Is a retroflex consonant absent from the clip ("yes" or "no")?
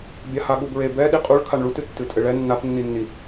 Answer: no